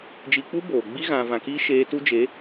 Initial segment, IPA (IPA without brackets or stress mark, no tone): d͡ʒ